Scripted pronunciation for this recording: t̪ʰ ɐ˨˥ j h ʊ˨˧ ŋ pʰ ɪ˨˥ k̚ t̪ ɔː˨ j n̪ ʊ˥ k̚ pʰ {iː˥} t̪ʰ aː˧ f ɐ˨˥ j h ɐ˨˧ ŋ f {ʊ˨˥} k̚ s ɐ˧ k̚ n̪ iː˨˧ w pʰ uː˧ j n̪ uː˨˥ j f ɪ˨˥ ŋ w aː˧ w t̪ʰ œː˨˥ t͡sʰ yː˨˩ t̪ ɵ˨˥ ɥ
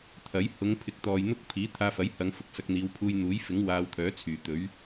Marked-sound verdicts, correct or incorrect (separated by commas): incorrect, correct